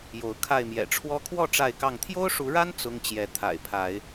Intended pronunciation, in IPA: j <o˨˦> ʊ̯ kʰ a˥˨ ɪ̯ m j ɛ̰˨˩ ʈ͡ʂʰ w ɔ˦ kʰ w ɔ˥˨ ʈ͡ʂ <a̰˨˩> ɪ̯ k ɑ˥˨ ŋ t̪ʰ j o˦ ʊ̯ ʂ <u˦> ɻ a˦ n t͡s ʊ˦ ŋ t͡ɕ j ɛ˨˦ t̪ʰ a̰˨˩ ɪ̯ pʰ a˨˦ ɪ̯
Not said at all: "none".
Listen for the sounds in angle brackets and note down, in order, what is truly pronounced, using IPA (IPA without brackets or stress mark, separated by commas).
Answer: o˨˦, a˥˨, u˨˦